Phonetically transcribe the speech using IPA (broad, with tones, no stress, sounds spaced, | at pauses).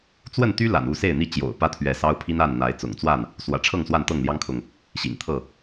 t͡s w ə˥˨ n t̪ y˦ l a̰˨˩ n u˥˨ s e˥˨ ɪ̯ n̪ i˥˨ t͡ɕ j o̰˨˩ ʊ̯ p ä˦ t̪ʰ ɥ ɛ˨˦ s ɑ˦ ʊ̯ pʰ i˦ n a˥˨ n n̪ a˨˦ ɪ̯ t͡s ʊ̰˨˩ ŋ t͡s w a˥˨ n | s w ä̰˨˩ ʈ͡ʂʰ ɤ˥˨ ŋ s w a˥˨ n t̪ ɤ˥˨ ŋ l j ɑ˦ ŋ kʰ ʊ˨ ŋ | ɕ ḭ˨˩ ŋ t̪ʰ ɤ˥˨